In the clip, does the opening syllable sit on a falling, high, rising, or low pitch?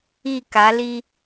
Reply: falling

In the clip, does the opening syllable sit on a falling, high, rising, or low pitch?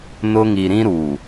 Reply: high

